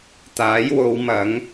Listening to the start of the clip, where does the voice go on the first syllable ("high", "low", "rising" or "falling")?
rising